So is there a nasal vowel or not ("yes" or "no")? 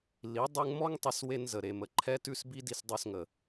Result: no